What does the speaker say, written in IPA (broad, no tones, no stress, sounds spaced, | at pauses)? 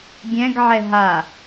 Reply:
ɡʲ ɛ̃ ɡ ʕ ɛ ɦ a